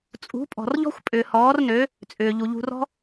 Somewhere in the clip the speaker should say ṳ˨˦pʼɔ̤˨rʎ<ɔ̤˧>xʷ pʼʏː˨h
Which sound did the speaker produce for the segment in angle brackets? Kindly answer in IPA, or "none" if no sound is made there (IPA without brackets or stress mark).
ɔ̤˦